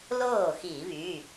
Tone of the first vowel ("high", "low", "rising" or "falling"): falling